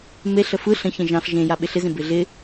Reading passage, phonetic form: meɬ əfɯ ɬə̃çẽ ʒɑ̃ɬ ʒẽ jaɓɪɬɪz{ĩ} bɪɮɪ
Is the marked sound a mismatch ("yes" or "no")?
yes